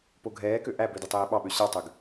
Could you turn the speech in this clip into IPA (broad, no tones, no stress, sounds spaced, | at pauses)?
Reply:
p o ɡʱ ɛː k ø ʔ æ b ø d e tˤ eː ɓ ɑ ɓ ø ɕ ɑ tˤ ø ɡ